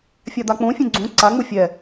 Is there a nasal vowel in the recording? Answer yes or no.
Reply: yes